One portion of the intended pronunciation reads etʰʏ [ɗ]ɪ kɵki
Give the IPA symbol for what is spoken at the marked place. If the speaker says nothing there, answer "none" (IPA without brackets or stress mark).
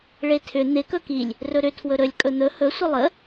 n̪